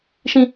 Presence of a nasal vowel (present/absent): present